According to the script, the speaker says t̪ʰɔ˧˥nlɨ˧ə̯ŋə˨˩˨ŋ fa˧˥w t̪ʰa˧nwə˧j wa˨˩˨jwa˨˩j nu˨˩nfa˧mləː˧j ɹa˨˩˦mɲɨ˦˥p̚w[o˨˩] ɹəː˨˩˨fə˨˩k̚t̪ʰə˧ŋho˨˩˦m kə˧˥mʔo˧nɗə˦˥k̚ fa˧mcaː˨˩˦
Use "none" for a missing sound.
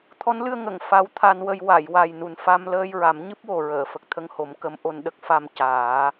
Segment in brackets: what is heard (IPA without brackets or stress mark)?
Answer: o˨˩